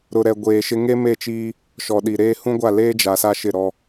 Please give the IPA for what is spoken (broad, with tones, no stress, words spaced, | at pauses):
ɾʊ˨ɾɛ˨ɡʷeː˨ʃɪ˦ ŋe˦me˦˨t͡ʃiː˦ | ʃɔ˨ɗi˨ɾeː˦ hũ˦ɡʷa˦˨leː˦d͡ʒa˨ sa˦ʃɪ˦˨ ɾɔ˦